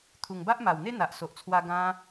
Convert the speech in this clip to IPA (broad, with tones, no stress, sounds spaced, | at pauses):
t̪ʰ u˨˩ ŋ b a˦ ʔ m a˨˩ w n̪ e˦ n̪ a˨ ʔ s o˨ ʔ t͡sʰ w a˧ ɡ ã˧